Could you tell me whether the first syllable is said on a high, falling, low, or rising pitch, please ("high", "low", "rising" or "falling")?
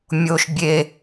high